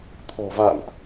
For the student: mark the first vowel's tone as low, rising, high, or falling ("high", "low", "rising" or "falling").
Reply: low